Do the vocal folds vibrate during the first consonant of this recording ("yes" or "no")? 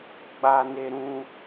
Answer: yes